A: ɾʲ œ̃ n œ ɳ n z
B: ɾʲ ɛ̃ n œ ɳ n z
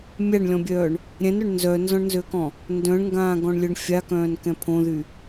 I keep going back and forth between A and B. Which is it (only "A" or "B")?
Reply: B